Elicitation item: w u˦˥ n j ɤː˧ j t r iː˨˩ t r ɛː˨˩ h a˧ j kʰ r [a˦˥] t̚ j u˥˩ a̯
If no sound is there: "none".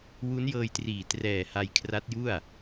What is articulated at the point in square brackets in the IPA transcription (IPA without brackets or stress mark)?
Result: a˦˥